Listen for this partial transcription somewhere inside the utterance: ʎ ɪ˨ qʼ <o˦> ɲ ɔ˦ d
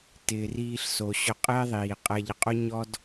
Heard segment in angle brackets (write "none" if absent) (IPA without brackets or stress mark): o˦